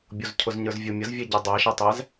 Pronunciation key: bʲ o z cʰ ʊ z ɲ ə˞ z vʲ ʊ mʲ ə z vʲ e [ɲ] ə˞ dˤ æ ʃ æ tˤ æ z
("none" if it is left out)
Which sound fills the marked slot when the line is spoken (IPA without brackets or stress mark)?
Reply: ɟ